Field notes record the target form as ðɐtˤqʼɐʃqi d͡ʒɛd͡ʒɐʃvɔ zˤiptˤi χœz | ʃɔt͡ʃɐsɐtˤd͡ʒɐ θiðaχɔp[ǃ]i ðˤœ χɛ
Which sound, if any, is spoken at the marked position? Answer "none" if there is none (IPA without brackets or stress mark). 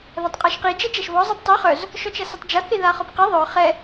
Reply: q